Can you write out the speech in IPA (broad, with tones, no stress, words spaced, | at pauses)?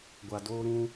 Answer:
ɡʷa˨doː˦ɾũ˦